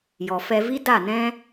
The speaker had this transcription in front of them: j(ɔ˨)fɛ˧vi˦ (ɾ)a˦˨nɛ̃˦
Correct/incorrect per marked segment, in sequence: correct, incorrect

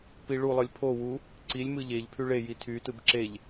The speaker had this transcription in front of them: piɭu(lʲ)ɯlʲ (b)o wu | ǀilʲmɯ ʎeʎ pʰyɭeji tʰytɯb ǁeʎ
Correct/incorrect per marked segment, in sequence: incorrect, incorrect

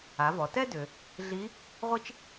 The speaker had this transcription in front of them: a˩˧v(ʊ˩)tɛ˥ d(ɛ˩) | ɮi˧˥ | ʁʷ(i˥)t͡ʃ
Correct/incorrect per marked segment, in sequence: incorrect, incorrect, correct

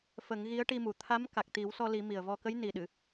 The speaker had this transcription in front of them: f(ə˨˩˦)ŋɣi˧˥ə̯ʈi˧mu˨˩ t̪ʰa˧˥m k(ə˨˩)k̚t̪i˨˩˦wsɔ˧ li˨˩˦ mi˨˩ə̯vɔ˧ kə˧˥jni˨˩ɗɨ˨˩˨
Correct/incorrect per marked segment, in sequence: correct, incorrect

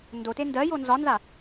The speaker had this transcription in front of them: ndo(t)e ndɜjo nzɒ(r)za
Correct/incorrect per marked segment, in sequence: correct, incorrect

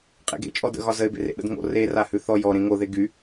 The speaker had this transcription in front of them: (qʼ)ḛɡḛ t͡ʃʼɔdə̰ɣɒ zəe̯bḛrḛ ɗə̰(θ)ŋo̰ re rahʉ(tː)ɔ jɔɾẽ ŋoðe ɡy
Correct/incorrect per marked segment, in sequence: correct, incorrect, incorrect

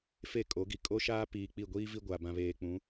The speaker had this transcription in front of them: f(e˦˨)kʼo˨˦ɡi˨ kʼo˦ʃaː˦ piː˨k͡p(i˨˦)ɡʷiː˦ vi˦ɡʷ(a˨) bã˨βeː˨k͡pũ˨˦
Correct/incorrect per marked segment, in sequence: correct, incorrect, correct

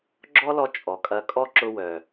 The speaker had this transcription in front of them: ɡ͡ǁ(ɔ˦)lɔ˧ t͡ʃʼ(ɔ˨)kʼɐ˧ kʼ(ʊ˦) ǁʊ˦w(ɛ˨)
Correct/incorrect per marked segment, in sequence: correct, correct, incorrect, incorrect

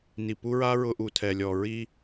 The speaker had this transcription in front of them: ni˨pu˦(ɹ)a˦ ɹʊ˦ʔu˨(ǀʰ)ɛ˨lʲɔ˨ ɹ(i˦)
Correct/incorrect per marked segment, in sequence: correct, incorrect, correct

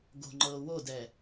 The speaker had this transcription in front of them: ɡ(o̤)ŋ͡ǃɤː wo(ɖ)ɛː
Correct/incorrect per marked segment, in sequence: correct, incorrect

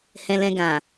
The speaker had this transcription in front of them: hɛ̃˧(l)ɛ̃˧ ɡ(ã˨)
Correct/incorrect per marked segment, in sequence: correct, correct

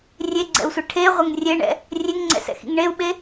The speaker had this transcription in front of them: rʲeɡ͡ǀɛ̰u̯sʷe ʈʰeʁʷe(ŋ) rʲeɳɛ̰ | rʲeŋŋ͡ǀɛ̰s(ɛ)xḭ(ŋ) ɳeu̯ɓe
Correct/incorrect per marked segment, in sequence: correct, incorrect, correct

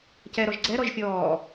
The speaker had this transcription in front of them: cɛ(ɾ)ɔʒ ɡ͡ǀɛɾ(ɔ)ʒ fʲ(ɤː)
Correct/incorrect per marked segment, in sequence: correct, correct, incorrect

